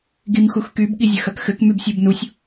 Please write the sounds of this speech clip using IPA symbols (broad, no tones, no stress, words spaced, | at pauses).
ɡimxuxkyb ɠizʲɐxɐkxɘk mybsʲubnusʲ